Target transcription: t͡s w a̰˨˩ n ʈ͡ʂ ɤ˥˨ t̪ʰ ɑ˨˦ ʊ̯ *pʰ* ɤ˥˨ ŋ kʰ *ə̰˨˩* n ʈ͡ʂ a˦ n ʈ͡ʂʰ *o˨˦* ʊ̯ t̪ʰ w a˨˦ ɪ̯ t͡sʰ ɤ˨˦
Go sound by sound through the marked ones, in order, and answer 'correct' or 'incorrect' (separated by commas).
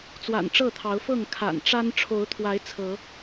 incorrect, incorrect, correct